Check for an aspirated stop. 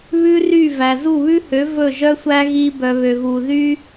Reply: absent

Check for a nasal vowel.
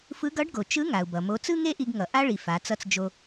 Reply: absent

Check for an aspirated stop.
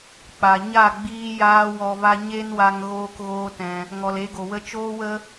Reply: absent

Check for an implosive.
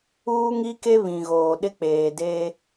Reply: present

